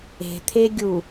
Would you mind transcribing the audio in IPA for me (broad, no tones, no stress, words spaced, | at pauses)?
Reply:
e̤t̪ʰeɡʲu